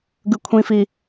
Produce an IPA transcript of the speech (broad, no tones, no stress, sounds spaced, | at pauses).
ɡ ɯ kʷʰ ĩ f i